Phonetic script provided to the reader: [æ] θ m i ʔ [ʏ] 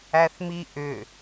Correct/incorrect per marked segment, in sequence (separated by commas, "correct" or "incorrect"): correct, correct